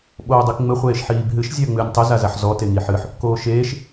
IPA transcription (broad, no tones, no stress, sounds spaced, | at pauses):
ɓ oː dˤ i k ŋ͡m ɘ χʷ eː ʃ ħ iː b ɦ ɨ ʃ zʲ a ə̯ ŋ͡m ɨː nʲ tˤ ɘ z a z a ħ z ɔ t e ŋ i ħ ɨ ħ | k oː ʃ eː ʃ